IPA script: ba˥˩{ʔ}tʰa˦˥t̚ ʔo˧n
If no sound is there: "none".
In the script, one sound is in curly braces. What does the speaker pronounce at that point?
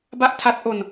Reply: ʔ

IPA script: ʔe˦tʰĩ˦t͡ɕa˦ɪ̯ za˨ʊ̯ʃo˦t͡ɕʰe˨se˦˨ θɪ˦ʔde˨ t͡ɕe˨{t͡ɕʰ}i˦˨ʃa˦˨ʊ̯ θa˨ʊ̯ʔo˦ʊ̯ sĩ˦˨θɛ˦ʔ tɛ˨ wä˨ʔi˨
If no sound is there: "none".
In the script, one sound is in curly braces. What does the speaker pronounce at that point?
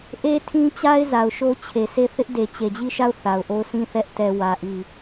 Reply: d͡ʑ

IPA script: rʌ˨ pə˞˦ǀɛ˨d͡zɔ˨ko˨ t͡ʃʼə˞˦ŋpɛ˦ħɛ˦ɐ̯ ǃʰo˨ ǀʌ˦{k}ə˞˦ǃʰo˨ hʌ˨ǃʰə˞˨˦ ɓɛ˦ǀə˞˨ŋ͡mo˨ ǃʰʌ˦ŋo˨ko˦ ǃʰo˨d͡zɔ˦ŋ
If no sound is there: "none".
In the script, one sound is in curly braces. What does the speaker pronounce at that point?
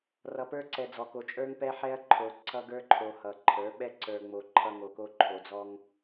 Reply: ɡ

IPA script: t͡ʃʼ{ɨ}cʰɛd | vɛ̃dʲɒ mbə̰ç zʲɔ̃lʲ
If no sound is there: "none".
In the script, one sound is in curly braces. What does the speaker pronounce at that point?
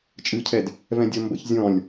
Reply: ɨ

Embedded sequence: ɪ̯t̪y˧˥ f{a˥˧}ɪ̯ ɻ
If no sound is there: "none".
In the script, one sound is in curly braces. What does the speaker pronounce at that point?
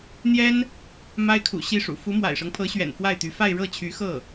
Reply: a˥˧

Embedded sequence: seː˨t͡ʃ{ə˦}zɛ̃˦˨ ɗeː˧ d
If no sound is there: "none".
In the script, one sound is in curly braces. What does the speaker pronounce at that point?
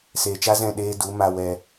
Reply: a˦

